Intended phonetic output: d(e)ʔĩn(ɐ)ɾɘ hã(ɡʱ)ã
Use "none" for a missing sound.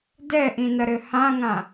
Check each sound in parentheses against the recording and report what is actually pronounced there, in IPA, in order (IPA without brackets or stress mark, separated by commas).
ɛ, ɐ, ŋ